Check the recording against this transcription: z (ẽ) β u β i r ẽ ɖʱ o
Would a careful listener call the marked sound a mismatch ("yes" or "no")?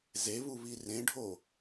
yes